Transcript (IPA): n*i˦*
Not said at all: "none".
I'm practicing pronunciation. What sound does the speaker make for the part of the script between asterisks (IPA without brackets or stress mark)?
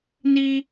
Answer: i˦